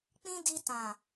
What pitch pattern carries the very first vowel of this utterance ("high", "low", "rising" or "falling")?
high